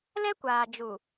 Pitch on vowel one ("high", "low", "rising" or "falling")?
high